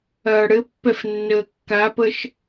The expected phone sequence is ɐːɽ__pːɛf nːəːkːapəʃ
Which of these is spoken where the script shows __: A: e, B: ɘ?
B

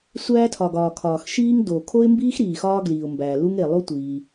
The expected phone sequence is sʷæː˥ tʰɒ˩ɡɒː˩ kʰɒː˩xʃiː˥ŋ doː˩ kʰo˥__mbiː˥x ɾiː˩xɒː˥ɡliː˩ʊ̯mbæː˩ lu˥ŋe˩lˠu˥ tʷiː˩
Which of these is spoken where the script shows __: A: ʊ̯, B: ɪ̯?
B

